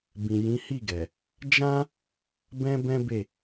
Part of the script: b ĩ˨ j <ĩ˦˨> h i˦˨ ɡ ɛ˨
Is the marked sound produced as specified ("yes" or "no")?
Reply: no